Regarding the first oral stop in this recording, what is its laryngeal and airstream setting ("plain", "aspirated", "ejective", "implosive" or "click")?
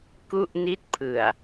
plain